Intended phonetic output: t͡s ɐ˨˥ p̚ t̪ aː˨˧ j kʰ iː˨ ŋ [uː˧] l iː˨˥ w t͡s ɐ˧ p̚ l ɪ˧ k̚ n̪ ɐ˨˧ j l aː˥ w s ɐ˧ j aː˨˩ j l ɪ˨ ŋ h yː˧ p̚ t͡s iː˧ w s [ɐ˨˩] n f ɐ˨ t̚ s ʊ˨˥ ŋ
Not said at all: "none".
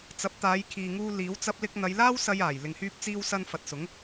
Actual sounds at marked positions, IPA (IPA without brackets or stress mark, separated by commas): uː˧, ɐ˧